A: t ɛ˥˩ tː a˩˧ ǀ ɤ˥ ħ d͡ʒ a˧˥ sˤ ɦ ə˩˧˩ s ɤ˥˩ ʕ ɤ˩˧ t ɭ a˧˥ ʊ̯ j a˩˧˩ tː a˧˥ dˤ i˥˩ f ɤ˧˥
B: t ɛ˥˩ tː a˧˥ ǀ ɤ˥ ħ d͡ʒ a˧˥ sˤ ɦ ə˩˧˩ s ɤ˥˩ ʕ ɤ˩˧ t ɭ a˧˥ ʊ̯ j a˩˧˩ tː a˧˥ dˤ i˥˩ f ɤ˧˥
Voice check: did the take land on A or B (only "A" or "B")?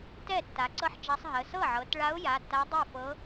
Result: A